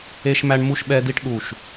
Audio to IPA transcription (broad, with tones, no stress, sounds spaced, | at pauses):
e˦ ʃ m æ˦ ɳ m u˦ ʃ ɓ ɛ˦ d i˦ ʈ ɗ u˦˨ ʃ